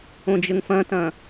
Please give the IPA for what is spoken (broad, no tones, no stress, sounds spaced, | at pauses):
õ d͡ʒ ə ŋ f ɐ̃ t ɐ̃